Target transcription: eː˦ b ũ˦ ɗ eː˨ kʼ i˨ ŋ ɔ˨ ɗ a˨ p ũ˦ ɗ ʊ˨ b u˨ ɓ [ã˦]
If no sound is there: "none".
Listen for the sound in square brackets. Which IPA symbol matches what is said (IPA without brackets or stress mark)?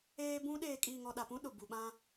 ã˦